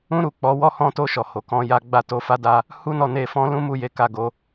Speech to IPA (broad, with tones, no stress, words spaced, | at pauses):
ũ˦ɾu˦˨k͡pɔ˨˦ wɔ˧hɔ̃˧to˧ ʃɔ˨ho˨kɔ̃˨˦ ja˧ɡ͡ba˦ to˧fa˦da˦ | hu˦nɔ˦˨ne˧fɔ̃˦ lũ˦mu˦˨ je˨˦ka˦˨ɡo˧